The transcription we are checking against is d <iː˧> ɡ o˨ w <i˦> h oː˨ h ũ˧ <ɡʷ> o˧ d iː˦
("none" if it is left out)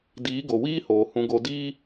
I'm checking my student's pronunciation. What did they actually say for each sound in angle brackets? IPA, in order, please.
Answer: iː˨˦, iː˦, ɡ

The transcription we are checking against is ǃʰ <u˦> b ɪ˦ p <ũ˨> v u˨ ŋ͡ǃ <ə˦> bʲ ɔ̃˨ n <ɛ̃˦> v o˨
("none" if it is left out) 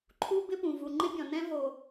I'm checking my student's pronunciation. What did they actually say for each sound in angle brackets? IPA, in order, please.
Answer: u˦, ũ˨, ɪ˦, ɛ̃˦

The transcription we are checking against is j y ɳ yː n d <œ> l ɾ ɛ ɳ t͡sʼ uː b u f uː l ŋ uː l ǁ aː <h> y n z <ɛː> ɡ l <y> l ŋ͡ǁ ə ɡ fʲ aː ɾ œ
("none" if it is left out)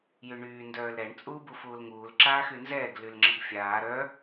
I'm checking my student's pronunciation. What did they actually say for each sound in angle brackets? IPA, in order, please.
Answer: œː, x, ɛː, y

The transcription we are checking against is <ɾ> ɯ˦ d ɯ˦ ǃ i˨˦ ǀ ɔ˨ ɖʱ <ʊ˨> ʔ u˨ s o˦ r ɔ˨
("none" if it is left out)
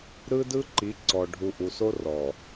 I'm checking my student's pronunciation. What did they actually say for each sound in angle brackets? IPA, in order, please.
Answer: ɾ, u˨

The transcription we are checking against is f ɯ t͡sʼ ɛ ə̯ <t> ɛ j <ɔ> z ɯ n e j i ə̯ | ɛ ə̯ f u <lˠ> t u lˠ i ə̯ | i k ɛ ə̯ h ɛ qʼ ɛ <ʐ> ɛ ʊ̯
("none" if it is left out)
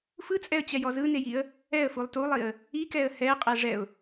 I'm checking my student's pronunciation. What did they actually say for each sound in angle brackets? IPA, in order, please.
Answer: t͡ɕ, ɔ, lˠ, ʐ

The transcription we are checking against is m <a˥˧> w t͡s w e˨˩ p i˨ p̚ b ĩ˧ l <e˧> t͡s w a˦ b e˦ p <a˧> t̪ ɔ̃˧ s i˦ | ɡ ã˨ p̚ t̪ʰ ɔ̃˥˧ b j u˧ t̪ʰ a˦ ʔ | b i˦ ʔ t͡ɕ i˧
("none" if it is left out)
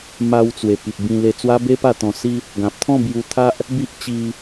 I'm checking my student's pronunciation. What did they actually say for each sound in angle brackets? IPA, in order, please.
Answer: a˧, e˧, a˥˧

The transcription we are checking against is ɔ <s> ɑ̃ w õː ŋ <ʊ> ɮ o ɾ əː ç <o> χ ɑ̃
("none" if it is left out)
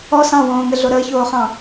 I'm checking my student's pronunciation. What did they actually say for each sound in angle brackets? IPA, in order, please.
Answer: s, ə, oː

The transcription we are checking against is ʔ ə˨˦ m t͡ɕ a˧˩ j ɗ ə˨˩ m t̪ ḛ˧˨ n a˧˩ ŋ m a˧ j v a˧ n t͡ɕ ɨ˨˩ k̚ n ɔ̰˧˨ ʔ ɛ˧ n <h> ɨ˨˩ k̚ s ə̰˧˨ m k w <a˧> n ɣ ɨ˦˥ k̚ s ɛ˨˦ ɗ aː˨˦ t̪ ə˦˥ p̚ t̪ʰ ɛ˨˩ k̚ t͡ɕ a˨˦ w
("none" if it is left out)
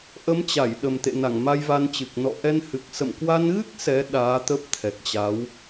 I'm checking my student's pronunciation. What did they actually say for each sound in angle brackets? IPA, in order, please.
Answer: h, a˧

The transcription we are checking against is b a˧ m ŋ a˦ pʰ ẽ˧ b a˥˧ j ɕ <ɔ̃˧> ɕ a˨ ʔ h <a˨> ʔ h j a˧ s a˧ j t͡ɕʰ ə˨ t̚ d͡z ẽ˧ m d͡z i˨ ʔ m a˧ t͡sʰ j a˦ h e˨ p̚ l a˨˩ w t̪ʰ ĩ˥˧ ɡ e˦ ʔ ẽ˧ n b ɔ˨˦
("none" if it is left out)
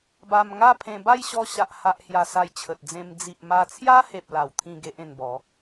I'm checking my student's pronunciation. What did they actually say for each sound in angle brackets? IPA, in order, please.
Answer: ɔ˧, a˨

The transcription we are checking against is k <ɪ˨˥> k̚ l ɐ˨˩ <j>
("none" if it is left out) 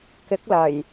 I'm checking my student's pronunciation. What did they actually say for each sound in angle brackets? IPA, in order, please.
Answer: ɪ˨˥, j

